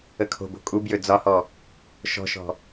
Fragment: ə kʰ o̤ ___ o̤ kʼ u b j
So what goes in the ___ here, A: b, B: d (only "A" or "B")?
A